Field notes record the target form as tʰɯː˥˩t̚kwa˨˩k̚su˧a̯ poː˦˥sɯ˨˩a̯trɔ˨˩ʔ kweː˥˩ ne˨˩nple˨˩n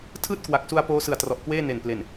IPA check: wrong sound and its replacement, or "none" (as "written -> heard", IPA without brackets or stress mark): none